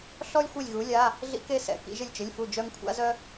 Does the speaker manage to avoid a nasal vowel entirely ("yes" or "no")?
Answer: yes